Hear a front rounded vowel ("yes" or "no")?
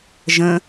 no